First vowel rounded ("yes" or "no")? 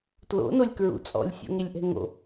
yes